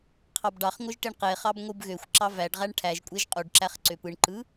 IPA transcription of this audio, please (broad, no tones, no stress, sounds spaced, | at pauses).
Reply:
qʰ ɑ b ɖ ɑ χ ŋʷ ɯ ʒ ʈ e ɳ q e χ ɑ b ŋʷ ɯ b ɣ ø xʷ ǁ ɑ v æ ɖ ʁ æ ɳ ʈʰ æ ʒ kʷʼ e ʒ qʼ u ɖ ǁ æ χ ǀ ø p ɯ ɳ ǃ ɯ